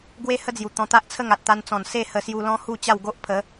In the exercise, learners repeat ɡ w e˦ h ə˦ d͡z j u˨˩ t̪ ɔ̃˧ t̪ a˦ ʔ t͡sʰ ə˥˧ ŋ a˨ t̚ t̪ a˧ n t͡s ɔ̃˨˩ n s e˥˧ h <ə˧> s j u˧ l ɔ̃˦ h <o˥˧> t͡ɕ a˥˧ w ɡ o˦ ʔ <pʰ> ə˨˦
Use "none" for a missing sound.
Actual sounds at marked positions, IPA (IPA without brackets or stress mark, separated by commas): ə˧, u˥˧, pʰ